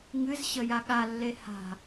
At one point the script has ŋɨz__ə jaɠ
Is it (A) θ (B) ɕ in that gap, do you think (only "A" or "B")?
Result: B